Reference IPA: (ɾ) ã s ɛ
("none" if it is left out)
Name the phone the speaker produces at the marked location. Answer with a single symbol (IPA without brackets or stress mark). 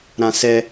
ɾ